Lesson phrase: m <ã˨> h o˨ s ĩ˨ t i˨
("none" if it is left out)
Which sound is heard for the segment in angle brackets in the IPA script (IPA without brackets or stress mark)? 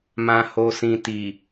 ã˨